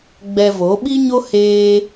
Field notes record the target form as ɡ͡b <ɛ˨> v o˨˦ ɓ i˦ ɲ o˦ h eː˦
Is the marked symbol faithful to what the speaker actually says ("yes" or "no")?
no